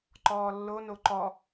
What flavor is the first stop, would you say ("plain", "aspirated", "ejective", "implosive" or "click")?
click